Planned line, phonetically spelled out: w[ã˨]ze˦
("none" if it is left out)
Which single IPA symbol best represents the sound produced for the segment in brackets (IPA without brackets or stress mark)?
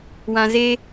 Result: ã˨